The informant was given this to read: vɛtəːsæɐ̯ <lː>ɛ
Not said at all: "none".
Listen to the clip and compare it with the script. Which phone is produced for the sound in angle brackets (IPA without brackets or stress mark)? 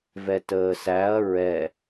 ɹ